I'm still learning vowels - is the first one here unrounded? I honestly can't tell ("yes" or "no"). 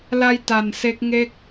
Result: yes